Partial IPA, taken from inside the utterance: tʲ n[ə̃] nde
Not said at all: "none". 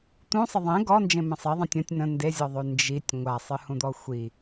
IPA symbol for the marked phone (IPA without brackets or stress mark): ə̃